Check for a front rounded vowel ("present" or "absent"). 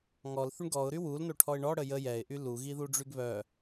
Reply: present